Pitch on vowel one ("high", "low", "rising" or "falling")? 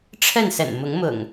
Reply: falling